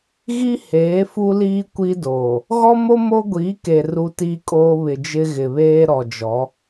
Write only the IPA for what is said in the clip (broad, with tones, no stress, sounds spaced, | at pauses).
ɣ i˦ h eː˨˦ f u˦ l iː˦ kʷ i˦ d oː˨ | ɣ ɔ˦ m o˦ m o˦ ɡʷ iː˨˦ k e˨ r u˦ t iː˦ kʼ oː˦ β ɪ˨ d͡ʒ ɪ˦ ɣ ɪ˨ β eː˦ ɾ ɔ˨ d͡ʒ ɔ˨˦